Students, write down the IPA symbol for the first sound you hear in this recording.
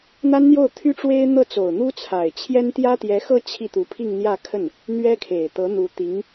n̪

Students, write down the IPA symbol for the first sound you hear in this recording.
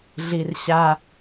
ɮ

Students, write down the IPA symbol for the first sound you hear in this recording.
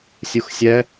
sʲ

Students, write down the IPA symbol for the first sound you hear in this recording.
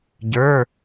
ɟ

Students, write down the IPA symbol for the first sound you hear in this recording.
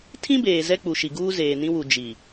tʰ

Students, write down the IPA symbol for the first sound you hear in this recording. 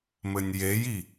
m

